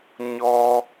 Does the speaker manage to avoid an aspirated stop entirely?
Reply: yes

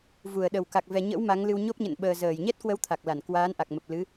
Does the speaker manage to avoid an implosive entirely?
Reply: no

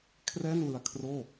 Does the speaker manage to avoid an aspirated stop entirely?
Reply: no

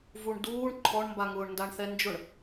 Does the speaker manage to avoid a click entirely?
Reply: no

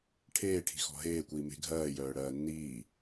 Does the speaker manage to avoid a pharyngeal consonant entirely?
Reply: yes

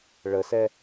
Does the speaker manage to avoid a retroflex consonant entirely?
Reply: no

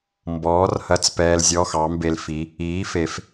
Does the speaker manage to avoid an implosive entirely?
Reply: yes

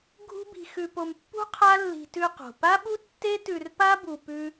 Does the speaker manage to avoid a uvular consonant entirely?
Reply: no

